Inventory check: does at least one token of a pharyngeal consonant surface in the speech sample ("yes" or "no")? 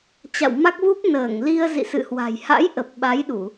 no